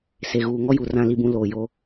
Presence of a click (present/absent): absent